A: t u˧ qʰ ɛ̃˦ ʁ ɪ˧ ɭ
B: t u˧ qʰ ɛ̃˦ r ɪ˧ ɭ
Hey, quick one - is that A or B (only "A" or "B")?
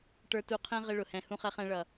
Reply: A